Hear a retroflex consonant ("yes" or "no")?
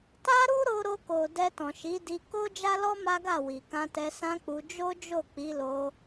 no